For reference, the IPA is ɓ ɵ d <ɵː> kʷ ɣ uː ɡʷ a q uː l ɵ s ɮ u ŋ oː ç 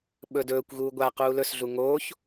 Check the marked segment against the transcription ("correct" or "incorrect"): correct